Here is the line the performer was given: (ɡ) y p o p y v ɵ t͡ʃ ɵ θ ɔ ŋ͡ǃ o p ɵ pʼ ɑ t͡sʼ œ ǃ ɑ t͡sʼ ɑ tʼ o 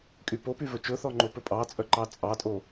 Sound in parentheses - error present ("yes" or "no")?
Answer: yes